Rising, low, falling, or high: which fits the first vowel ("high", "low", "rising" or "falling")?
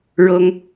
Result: high